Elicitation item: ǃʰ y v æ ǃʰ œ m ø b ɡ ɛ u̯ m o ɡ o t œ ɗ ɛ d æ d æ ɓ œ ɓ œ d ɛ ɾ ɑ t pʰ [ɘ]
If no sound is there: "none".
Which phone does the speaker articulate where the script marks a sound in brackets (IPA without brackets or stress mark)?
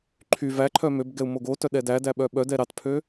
ø